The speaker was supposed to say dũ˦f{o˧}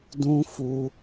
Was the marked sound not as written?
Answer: yes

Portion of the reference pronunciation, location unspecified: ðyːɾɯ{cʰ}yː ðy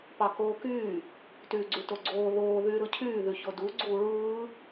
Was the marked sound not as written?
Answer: no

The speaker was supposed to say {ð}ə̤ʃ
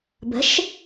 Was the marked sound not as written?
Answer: yes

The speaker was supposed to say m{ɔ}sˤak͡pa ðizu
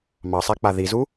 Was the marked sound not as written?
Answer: yes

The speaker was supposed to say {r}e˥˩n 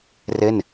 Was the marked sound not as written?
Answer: no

